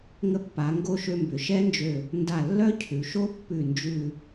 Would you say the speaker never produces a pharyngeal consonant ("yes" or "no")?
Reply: yes